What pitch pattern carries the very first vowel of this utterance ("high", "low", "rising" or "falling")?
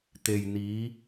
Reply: low